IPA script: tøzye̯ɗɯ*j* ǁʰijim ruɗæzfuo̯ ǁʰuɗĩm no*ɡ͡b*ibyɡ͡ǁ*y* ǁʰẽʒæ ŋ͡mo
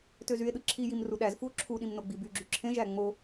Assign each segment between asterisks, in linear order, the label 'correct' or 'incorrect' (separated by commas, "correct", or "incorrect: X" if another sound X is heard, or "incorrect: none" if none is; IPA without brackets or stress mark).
incorrect: none, correct, correct